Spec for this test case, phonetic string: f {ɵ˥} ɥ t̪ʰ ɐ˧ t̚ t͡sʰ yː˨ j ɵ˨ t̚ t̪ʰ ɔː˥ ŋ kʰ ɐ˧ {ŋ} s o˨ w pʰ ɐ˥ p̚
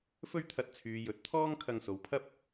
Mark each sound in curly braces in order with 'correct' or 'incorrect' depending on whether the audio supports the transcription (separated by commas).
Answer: correct, correct